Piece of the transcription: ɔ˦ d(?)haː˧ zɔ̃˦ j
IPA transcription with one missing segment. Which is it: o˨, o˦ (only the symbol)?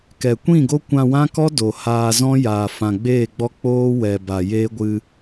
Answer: o˨